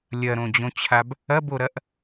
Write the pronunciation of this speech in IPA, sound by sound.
lʲ ɐ ɾ õ d͡ʑ õ t͡ɕʰ a b | ɐ b o ɾ ɐ ʔ

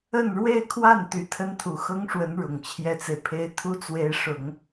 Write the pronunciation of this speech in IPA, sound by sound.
ə˥˧ n ɻ w e˥˧ ɪ̯ kʰ w a˥˩ n t̪ y˧˥ t̪ʰ ə˥ n t̪ʰ u˨˩ x ɤ˥ ŋ ʂ w ə˧˥ n ɻ ʊ˨˩ ŋ t͡ɕʰ j ɛ˥ t͡s e˨ ɪ̯ pʰ e˥ ɪ̯ t̪ʰ u˥ t͡s w e˧˥ ɪ̯ ʂ ʊ˨˩˦ ŋ

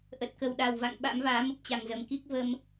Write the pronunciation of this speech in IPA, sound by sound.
ʔ ə˨˩ t̚ k ə˨˩ w ɗ a˨˩ w v a̰˧˨ ŋ ɓ a̰˧˥ m v aː˨˦ m ə˦˥ p̚ t͡ɕ a˨˩ ŋ z ə˨˩ m k i˦˥ k̚ v ə˧ m

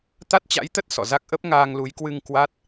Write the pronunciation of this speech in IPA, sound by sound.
t̪ a˦˥ t̚ t͡ɕ a̰˧˥ j t̪ ə˦˥ t̚ s ɔ̰˧˨ z a˦˥ k̚ ʔ ə˦˥ p̚ ŋ aː˧ ŋ l u˨˦ j k w ɨ˧ ŋ k w a˦˥ t̚

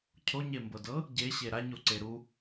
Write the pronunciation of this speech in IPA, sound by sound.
cʰ o ɲ e m b ɤ d ɤ | ɟ e ɕ e ɾ a ɲ o ǀ e ɾ u

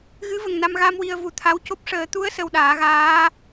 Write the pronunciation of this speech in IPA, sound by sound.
ɣ ɨ˧˥ v ə˨˩ ŋ n a˧ m ɣ a˧ m w i˧ ə̯ v u˨˩ t̪ʰ a˧˥ w c o˦˥ p̚ ʂ əː˨˩˦ t̪ u˧˥ ə̯ s ə˧ w ɗ aː˨˩˦ ɣ aː˧˥

